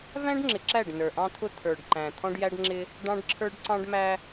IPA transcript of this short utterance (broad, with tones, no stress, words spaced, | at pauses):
væ̃˦ɖŋ͡ǁɪ˨ǁæ˦˨ɖ nə˞˨ʔɑ̃˦t̪ʰʊ˦ t̪ʰə˞˨ɖ ǃæ̃˨ t̪ʰɔ̃˦ɖjæ˦ɖŋ͡ǁɪ˦ | ɖɑ̃˦ɖǁʰə˞˦ɖǀɑ̃˦ɖ mæ˦